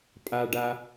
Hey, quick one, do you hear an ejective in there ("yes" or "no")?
yes